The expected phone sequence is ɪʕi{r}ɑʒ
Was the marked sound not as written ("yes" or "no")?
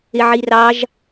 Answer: no